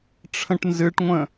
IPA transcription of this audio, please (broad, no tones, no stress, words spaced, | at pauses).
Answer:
ʈ͡ʂʰə̃ʈnzɨʈŋʷə̃